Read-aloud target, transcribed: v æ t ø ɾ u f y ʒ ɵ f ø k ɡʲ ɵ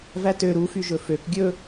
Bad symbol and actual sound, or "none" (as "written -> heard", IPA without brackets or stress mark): none